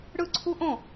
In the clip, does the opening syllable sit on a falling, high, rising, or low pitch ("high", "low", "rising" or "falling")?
falling